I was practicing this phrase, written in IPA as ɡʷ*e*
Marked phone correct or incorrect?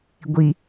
incorrect